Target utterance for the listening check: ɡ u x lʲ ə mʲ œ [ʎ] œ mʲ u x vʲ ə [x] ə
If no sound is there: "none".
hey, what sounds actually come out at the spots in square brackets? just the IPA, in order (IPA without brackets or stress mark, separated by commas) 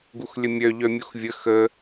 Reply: ʎ, x